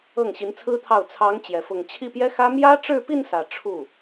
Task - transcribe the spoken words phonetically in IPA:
ɤ˥˩ŋɕi˧˥nt͡sʰɹ̩˥t̪ʰɑ˥˩ʊ̯ t͡sʰɑ˧˥ŋ t͡ɕjɛ˧˥fʊ˥˧ŋ t͡ɕʰi˥˩pjɛ˥xä˥ mjä˥ʈ͡ʂɻ̩˥˧pi˥˧n sä˥˧ ʈ͡ʂʰu˥˩

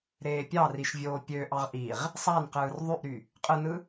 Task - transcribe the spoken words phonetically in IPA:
ɾeːpʲɑriʃ vʲoːpʲøʔɑʁ ʔiʁ | sˤænqɯːr ðˤyʔɾy | qʼɯnɯ

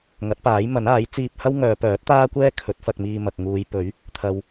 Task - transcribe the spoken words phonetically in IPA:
ŋɐ˨˥t̚paː˨˥j mɐ˨˥naː˨˥j t͡siː˧p̚hɐ˥w ŋœː˨˧pœː˨˥t̚t̪aː˥kʷɛː˥ kʰɵ˨˥t̚fɐ˧k̚miː˧ mɐ˨k̚ŋuː˨˧j pɵ˨˥ɥ | t̪ʰɐ˨˧w

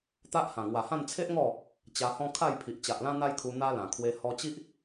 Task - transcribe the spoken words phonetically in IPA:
t̪a˦ʔhã˨˩ ŋwa˨˩hã˥˧n t͡sʰe˦ʔŋɔ˥˧ | t͡ɕa˧hɔ̃˦ kʰa˥˧jpʰi˨ʔ t͡ɕa˨ʔlã˦ n̪a˦jkʰu˧ n̪a˦ lã˨˩kʰwe˧ hɔ˧ t͡ɕi˦ʔ

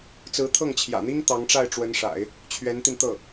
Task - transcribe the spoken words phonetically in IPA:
t͡sɹ̩˧˥t̪ʰɤ˥˩ŋt͡ɕʰjä̰˨˩n̪i˥ŋ t̪ɑ˧˥ŋʈ͡ʂa˥˩ɪ̯ʈ͡ʂwə˧˥nʂa̰˨˩˦ɪ̯ | t͡ɕʰɥɛ˧˥nt̪i˧nt̪ɤ˥˩

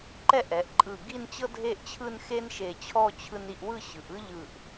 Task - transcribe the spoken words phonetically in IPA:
ǃɛ˥˧ʔɛ˩˧ʔǃʼɯ˧˩ ɡi˥˧nt͡ɕɤ˥dʱe˥˧ʔt͡ɕʰɯ˥˧n xe˥nʃe˧˩t͡ɕʰɔ˥˧ t͡ɕʰɯ˧ni˧ʔwɯ˥˧ ɕɯ˩˧ʔ ɯ˥ʎɯ˧˩ʔ

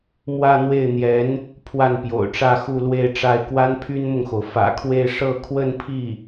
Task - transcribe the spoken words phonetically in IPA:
mwä˥˧n̪we˥˩ɪ̯n̪jɛ˧˥n | pʰwa˥˩npjo̰˨˩ʊ̯ʈ͡ʂä˥˧ xu˥˧lwe˥˧ɪ̯ʈ͡ʂa˥˩ɪ̯ kwa˥npʰy˥nmʊ˨ŋxo˩ʊ̯ fä̰˨˩ kʰwe˥˧ɪ̯ ʂɤ˥˧ kʰwə˥˧npʰi˥˩

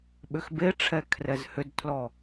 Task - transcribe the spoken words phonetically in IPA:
ɓʏxbeʈ͡ʂʰɛ kʰrɛzhʏdtʰlɔ

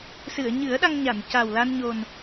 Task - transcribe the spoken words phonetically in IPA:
sɨ˨˩˨ə̯ɲɨ˨˩˦ə̯ ɗa˧ŋɲa˨˩˨n ca˨˩w la˧nɲo˨˩n

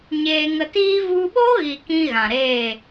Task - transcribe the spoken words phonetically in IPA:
ɲeː˧ŋə˧tiː˦ vu˧ɓo˦ɣi˨ kĩ˦ɣã˨ɾeː˦˨

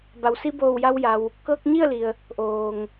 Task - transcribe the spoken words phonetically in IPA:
ba˩wsi˧boː˧˩wja˧w ja˧w | kɤː˧k̚ɲi˥˨ə̯li˩ə̯ | ʔoː˩ŋ

